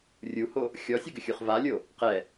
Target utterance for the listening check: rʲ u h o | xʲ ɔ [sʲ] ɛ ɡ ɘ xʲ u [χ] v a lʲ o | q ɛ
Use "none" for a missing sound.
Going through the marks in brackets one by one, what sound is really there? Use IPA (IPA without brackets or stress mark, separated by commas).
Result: sʲ, χ